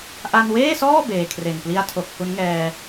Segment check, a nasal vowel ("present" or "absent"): absent